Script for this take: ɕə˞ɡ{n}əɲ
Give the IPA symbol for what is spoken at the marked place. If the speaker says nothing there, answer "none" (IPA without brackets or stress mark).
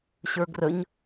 r